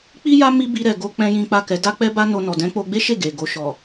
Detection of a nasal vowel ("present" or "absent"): present